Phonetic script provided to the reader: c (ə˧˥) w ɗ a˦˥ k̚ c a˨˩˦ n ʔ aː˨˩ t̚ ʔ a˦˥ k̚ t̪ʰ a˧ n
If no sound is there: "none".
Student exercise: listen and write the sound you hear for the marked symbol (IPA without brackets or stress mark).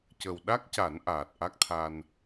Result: ə˨˩